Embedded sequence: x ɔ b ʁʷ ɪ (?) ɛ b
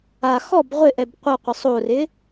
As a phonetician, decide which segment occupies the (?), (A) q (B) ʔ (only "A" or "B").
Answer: B